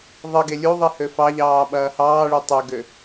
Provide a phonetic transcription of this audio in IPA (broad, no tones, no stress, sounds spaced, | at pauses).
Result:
ðˤ ɘ ɡ e lʲ u ðˤ i h ø f ɑ ʎ ɑː ɓ ɐː h ɑː ɭ e tˤ ø ɡ ø